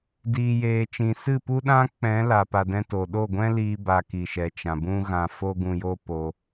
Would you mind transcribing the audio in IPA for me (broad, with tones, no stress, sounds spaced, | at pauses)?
d iː˧ j eː˧ t͡ʃ ĩ˧ s ɨ˦˨ p u˦ ɗ ã˦ k͡p ɛ̃˨˦ l a˨ p a˧ d ɛ̃˦ t o˨ ɗ o˦˨ ɡʷ ɛ̃˦ l iː˧ b a˧ k i˨ ʃ ɛ˨ t͡ʃ ã˨ b ũ˦ ɣ ã˧ f o˦ ɡ ũ˧ j o˦ p o˧